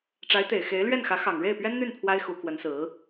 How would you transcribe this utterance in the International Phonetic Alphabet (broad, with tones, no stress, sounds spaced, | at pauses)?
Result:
ʈ͡ʂ a˧˥ ɪ̯ t̪ e˨˩ ɪ̯ x e˧˥ ɪ̯ l ɥ ɛ˥˩ n x ä˧˥ x ɑ˨˩ ŋ ɻ e˥˩ ɪ̯ p ɥ ɛ˥ n n̪ y˥˩ n pʰ w a˥ ɪ̯ x u˧˥ k w ə˧˥ n s ɹ̩˧˥